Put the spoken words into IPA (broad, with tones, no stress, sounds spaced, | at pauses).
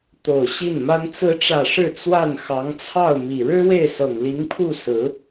t̪ o˨˩ ʊ̯ ɕ i˥˩ n m a˥ n t͡s ɹ̩˧˥ ʈ͡ʂ ä˨˩ ʂ ɻ̩˥˧ t͡s w a˥˩ n x ɑ˧˥ ŋ t͡sʰ ɑ˥˩ ʊ̯ m i˨˩ ɻ ɻ̩˥ w e˥˩ ɪ̯ s ɤ˨˩ ŋ l i˧˥ ŋ pʰ u˥˩ s ɹ̩˧˥